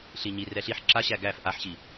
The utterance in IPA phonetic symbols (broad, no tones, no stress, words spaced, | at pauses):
ɬiɲi rɛɬiħ ǁaɕæ ɡæf ʔaħɕi